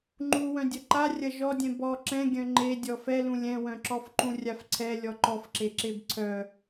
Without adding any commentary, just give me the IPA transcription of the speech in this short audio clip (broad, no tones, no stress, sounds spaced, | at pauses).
ŋ͡ǃ u w œ̃ dʲ ɐ ǃ a rʲ ɐ ʒ ɔ dʲ ɛ̃ b ɔ ǁ ɛ̃ ɡʲ œ̃ ŋ͡ǃ e dʲ ɔ f ɛ l ũ lʲ ɛ̃ w œ̃ ǁ ɔ f ǃ ũ rʲ a f ǀʰ ɛ lʲ ɔ ǃ ɔ f ǁ e ǁ e b ǀʰ œ